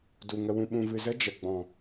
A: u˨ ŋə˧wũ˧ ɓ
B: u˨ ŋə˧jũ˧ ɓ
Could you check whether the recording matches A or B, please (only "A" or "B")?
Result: A